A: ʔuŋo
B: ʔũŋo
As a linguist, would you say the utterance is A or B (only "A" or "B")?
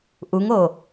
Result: A